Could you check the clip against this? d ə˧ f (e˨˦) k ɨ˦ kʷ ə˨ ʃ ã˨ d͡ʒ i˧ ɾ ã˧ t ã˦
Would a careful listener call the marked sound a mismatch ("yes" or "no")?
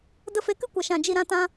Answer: no